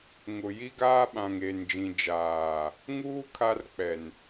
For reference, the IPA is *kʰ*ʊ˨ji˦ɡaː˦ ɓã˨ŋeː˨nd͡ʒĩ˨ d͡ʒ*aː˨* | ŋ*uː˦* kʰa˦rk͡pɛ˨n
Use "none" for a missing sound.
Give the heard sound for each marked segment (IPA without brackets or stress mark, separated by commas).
ŋ, aː˨, uː˦